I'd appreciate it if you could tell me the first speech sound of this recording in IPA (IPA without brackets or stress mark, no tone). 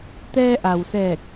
t̪